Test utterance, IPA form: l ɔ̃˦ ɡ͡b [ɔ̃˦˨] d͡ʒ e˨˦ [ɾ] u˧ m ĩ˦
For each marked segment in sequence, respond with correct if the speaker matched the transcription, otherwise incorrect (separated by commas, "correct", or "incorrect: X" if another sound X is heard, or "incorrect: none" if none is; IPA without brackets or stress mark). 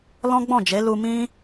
correct, incorrect: l